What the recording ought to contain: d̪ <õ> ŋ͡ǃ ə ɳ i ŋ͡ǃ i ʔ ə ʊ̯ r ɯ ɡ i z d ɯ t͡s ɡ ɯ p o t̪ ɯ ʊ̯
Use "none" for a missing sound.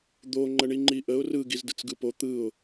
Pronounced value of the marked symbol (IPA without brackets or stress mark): o